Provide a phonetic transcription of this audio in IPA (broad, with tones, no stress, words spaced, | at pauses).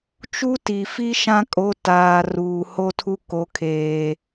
t͡ʃu˦ ti˨fi˦ ʃã˦kʼo˨˦ taː˨ ruː˨ho˦tʰu˦ ko˨kʰeː˨